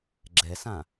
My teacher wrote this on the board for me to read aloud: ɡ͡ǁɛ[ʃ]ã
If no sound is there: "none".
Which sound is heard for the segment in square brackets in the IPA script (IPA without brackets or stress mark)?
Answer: s